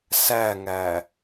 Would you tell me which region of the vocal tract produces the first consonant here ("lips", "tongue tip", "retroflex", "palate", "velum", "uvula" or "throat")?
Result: tongue tip